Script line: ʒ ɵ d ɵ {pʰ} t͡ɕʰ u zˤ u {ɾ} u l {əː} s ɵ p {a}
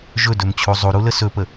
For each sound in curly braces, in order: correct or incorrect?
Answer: incorrect, correct, incorrect, incorrect

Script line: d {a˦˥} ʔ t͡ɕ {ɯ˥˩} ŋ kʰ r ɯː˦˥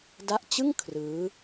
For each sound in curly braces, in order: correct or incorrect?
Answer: correct, correct

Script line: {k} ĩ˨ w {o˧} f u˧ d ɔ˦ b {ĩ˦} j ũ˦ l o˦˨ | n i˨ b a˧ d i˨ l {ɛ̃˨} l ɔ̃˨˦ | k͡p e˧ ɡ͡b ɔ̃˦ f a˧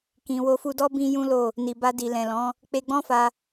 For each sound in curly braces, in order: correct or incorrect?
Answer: correct, correct, correct, correct

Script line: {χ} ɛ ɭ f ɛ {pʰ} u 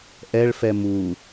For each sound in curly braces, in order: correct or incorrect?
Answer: incorrect, incorrect

